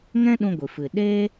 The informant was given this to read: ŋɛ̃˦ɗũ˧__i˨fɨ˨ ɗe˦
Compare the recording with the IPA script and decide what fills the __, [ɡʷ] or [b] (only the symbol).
ɡʷ